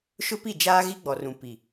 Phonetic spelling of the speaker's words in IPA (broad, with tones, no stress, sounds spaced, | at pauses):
ʃ ʊ˦ p i˦˨ d͡ʒ aː˦ ɣ i˦ ɡ͡b ɔ˨ r ũ˨ p i˨